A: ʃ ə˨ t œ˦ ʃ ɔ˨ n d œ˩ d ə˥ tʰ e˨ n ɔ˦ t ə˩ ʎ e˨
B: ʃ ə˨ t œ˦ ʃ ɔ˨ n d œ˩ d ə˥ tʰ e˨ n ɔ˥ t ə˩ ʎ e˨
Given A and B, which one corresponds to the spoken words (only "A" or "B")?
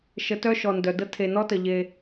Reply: B